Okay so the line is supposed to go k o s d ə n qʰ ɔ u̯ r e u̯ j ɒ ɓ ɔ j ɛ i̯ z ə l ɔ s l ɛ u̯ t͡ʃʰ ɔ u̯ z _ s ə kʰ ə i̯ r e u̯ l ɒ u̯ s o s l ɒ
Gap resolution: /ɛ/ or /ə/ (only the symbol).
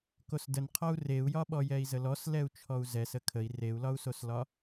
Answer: ɛ